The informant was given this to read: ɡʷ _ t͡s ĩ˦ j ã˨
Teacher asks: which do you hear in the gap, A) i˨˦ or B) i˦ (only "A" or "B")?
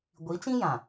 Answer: A